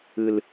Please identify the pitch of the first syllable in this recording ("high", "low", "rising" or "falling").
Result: low